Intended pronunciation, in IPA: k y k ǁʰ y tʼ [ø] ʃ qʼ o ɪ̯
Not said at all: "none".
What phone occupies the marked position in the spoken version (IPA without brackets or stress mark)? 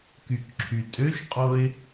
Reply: ø